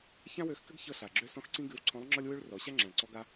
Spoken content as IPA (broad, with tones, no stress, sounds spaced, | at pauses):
ç ã˥ w ø˧˥ x k ɘ˥ ɡ ç ɤ˥ ɬ a˩ ɡ͡ǁ ø˥ s ɔ̃˥ x ǀ ĩ˥ ɡ ɨ˧˥ w ǀʰ ɔ̃˧˥ lˠ ŋ͡ǁ ɔ˥ lʲ w ø˥ ɭ r ɔ˩˧ ɕ a˥ ŋ͡ǁ ã˩ ɭ ǀ ɔ˧ ɡ a˧